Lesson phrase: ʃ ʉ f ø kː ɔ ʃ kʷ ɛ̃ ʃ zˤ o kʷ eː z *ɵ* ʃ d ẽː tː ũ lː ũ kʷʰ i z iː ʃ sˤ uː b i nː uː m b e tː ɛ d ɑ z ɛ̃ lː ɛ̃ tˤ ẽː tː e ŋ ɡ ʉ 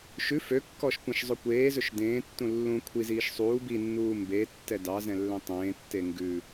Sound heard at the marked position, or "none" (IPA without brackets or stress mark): ɵ